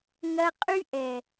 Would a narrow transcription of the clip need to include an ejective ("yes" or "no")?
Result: yes